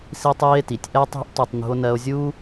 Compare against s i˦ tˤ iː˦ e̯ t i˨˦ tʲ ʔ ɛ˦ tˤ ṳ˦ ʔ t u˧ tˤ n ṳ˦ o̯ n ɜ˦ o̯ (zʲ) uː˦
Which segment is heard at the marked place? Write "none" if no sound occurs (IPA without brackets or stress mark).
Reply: zʲ